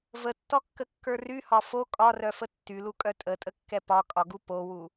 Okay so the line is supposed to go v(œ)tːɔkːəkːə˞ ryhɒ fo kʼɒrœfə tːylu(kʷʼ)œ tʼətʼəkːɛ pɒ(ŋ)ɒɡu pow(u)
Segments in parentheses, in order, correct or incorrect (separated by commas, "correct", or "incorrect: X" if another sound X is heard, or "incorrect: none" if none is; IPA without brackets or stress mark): incorrect: ə, incorrect: kʼ, incorrect: kʼ, correct